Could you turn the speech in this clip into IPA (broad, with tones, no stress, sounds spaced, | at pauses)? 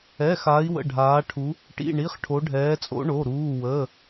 ɛ˧˥˧ x a˧˥ i̯ w ə̰˧˥˧ ɖʱ aː˧˥ ʈʰ u˧˥ | ʈ ḭ˧˥˧ ɳ i˧˥˧ χ ʈʰ o˧˥ ɖʱ ɛː˧˥ t͡sʼ o̰˧˥ ɳ o˧˥˧ ɾ uː˧˥˧ w ə˧˥˧